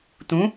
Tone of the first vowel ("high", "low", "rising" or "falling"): rising